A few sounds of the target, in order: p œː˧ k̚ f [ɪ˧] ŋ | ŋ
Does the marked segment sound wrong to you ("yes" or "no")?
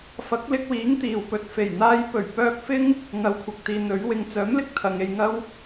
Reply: yes